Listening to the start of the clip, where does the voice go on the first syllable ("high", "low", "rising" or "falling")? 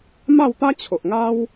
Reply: falling